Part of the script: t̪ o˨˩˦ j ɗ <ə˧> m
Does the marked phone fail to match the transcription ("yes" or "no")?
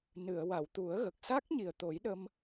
no